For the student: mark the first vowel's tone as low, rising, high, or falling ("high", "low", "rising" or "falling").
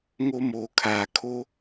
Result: high